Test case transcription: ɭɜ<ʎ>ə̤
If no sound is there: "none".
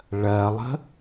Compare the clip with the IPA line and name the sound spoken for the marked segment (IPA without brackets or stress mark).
lˠ